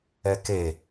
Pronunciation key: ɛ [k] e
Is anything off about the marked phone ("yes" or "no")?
no